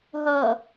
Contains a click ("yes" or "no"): no